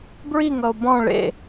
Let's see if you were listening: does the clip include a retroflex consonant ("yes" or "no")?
yes